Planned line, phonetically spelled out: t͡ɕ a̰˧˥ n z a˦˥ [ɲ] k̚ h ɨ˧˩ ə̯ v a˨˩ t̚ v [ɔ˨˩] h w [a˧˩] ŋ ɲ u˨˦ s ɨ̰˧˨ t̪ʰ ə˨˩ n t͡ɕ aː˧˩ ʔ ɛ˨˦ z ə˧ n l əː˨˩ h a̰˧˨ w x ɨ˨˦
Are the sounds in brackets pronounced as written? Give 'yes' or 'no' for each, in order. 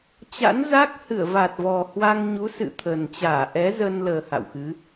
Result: no, yes, no

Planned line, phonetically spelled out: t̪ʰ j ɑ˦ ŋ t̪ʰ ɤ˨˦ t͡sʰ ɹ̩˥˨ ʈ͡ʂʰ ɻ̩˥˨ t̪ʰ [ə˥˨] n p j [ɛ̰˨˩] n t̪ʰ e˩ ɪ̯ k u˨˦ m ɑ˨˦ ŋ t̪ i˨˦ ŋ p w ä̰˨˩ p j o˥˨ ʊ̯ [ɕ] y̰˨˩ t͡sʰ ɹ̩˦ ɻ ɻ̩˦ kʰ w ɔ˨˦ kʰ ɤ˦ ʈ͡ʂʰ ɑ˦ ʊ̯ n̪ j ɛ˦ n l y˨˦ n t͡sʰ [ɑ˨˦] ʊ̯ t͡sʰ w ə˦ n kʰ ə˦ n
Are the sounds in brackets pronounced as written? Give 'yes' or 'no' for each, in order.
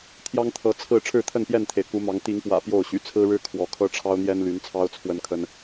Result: yes, no, yes, no

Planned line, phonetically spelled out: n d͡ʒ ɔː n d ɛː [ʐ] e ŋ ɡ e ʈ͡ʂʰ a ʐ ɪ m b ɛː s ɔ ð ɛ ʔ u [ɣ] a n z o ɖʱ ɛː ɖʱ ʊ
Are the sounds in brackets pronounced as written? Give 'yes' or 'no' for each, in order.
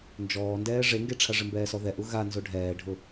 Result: yes, yes

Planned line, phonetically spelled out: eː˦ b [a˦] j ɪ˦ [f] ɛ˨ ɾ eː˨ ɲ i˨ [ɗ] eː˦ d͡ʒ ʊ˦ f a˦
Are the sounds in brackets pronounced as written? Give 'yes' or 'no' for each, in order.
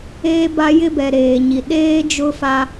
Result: yes, no, yes

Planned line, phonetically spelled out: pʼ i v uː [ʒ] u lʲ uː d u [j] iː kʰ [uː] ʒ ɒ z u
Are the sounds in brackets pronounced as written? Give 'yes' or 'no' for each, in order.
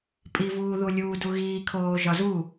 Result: no, no, no

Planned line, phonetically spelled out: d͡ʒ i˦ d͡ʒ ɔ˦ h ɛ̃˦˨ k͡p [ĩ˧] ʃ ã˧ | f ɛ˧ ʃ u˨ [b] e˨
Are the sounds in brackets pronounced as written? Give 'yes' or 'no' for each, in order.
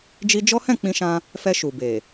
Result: yes, yes

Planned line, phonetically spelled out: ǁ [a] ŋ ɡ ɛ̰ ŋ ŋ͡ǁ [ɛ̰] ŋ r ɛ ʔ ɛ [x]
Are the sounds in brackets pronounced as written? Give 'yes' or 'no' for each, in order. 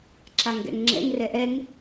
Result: yes, yes, no

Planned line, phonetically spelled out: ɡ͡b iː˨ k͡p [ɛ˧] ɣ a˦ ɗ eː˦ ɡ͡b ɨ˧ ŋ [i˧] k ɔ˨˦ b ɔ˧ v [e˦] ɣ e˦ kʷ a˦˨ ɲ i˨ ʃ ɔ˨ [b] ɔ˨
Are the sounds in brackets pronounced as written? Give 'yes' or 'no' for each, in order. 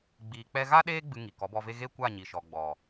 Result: yes, no, yes, no

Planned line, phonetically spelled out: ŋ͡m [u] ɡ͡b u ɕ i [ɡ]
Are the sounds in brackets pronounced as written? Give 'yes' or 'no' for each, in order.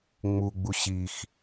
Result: yes, no

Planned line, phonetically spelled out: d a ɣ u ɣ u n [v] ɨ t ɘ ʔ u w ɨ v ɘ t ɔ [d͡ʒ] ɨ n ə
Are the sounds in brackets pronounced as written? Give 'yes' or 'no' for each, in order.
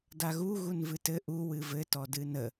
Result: yes, no

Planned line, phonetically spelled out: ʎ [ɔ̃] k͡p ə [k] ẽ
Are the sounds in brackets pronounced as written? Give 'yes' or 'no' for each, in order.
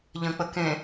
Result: no, yes

